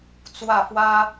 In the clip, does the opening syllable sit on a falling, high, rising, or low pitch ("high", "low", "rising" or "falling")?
falling